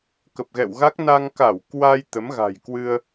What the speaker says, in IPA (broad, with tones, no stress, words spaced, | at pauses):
kə˨˩p̚ɣɛ̰˧˨wɣa˦˥k̚ na˧ŋka˧˩wkwa˧j t̪ə˨˦mɣa̤˨˩jkwɨ˧ə̯